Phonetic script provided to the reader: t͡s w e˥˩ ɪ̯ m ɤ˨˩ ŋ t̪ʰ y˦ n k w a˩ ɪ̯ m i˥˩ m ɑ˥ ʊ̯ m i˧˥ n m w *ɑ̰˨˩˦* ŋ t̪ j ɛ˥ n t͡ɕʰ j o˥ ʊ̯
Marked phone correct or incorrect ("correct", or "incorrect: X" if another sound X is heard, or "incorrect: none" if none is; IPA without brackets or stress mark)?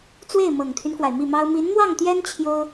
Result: incorrect: ɑ˥˩